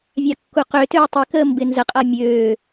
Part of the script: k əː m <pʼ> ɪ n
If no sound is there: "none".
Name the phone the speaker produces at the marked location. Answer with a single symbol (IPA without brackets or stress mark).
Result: b